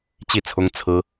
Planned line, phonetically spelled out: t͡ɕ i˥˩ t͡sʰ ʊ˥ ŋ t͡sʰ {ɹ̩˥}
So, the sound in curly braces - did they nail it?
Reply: yes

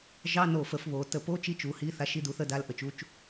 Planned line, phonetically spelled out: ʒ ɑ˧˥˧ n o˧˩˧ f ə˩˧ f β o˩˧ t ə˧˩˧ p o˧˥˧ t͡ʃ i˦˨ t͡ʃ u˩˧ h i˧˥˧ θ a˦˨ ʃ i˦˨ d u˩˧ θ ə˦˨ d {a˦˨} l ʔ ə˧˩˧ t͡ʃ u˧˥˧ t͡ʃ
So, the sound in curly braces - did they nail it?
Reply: yes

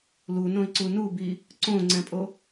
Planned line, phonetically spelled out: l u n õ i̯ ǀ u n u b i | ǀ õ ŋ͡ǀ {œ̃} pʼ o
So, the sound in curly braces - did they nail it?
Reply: no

